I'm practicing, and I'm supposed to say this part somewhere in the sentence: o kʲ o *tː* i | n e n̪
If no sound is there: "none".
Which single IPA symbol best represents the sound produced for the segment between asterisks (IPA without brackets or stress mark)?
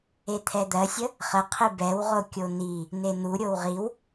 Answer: n̪